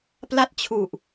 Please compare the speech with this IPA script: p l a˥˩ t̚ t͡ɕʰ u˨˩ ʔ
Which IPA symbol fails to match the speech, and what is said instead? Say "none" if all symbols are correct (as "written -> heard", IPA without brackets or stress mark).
none